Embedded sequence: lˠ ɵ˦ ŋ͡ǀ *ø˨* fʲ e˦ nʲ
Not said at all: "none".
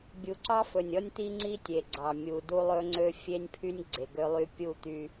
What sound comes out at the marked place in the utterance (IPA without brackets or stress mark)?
ø˦